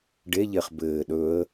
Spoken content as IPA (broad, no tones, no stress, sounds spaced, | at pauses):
ɖ e ʎ e χ b ɘː ɗ ɵ ə̯